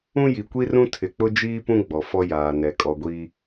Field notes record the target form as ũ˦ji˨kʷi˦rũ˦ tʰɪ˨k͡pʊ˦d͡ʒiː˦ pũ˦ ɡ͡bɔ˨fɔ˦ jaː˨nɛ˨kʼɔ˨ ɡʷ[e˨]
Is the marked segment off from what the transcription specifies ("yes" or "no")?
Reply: yes